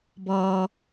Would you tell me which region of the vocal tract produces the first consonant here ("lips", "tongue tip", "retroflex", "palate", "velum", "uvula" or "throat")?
lips